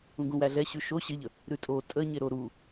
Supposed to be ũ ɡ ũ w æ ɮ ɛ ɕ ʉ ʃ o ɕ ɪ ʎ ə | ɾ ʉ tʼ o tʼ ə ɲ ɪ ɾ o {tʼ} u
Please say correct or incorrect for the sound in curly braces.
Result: incorrect